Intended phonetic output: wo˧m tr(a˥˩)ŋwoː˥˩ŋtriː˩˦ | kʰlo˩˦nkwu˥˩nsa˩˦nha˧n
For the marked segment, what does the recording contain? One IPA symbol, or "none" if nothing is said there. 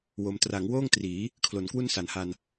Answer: a˩˦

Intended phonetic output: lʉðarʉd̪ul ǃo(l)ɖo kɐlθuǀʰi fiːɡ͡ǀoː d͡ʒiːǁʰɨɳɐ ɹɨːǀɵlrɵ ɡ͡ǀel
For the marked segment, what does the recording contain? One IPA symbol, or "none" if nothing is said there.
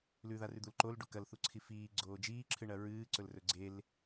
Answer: l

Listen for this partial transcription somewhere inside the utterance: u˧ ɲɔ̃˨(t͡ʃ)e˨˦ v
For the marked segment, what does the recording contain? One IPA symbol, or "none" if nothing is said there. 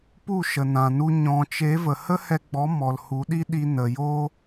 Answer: t͡ʃ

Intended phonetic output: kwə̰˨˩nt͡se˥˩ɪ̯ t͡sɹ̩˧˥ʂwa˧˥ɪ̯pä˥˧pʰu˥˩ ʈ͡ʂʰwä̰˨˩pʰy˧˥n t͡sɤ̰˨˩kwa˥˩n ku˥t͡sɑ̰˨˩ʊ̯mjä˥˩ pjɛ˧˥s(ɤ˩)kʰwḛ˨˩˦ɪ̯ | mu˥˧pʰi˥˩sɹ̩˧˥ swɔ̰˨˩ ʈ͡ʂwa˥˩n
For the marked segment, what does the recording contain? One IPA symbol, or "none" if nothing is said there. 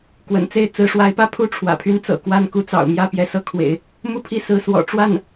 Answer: ɤ˧˥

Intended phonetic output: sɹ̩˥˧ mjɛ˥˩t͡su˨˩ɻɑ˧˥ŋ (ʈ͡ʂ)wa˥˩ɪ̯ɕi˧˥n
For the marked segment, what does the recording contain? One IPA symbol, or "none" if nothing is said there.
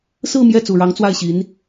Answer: t͡s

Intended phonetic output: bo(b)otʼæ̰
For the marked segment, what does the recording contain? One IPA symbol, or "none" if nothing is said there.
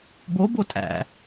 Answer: b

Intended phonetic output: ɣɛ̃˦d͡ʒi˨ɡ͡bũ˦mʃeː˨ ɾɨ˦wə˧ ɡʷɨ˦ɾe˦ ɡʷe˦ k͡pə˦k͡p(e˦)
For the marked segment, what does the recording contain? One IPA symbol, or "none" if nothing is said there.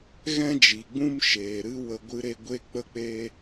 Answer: e˦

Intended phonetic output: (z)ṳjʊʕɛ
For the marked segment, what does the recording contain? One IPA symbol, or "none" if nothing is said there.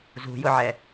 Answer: z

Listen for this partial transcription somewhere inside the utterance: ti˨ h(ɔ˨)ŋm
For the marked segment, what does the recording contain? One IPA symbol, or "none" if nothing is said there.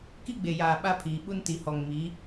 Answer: ɔ˨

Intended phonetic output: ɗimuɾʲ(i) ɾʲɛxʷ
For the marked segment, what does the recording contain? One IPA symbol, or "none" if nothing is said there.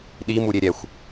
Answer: e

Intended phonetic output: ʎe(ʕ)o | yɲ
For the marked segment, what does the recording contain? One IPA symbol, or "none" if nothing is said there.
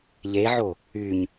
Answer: ʕ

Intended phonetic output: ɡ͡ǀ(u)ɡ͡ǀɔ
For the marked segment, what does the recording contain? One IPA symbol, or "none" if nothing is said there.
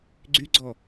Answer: y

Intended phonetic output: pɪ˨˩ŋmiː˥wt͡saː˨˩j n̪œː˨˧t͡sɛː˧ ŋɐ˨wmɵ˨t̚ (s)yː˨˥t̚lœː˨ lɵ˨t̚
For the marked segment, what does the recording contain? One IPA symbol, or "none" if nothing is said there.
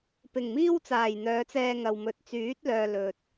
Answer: t͡s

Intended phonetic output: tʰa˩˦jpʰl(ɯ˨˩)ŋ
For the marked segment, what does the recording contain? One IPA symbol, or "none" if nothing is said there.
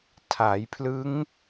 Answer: ɯ˦˥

